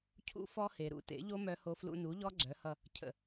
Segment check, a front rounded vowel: present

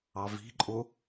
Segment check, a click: present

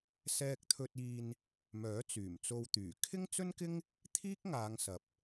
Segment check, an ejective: absent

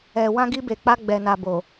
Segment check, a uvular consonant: absent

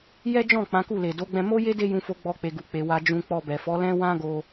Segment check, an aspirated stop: absent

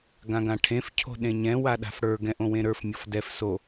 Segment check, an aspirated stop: present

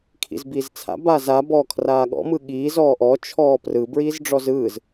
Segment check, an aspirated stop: present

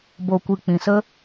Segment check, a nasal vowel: present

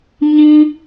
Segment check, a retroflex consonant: absent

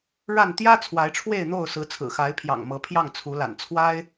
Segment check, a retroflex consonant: present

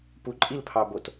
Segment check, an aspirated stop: present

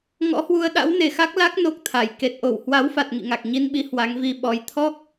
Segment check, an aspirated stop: present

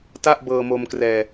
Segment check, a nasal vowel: absent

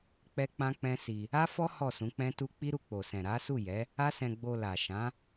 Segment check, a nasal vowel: present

